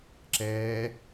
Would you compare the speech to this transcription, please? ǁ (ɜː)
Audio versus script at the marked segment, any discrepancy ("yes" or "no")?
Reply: yes